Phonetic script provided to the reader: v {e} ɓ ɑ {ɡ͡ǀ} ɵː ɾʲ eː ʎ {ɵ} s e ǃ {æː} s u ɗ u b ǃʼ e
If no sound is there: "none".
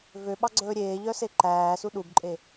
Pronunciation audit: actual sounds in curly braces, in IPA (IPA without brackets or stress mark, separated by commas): ø, ɡ͡ǀ, œ, æː